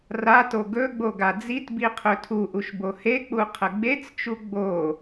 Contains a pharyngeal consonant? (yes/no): no